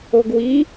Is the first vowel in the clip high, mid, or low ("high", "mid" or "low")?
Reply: mid